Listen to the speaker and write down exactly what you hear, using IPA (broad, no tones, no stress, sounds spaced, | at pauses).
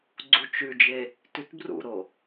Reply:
ɡ͡ǀ u t͡ʃ ʉ d͡ʒ e | t ʉ t b r ṵ ɾ o